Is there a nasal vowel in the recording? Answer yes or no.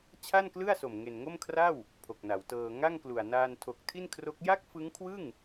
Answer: no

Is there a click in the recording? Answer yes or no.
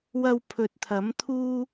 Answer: no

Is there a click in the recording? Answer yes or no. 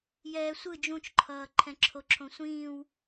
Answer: yes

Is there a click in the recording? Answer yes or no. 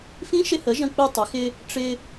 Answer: no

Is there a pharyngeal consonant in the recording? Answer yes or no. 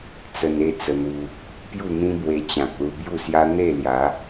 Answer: no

